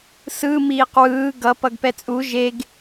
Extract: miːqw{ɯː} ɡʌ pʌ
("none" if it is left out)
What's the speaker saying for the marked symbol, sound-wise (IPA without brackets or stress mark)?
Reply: ɯː